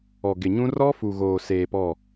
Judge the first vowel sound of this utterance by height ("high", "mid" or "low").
mid